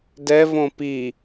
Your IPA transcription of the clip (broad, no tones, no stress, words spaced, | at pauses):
dɛvõ pi